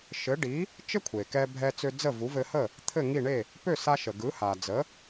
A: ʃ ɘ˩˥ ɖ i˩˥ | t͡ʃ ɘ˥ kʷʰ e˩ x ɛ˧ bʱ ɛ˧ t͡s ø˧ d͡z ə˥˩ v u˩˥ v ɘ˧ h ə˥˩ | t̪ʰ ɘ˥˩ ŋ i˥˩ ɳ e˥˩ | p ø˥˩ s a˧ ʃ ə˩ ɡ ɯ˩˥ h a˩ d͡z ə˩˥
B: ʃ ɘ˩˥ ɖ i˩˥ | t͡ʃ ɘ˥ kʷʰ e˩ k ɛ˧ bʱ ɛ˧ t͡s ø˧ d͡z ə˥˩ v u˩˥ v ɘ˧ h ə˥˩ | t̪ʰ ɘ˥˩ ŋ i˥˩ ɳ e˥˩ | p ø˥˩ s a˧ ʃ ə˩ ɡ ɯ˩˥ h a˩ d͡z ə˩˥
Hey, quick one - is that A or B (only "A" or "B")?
B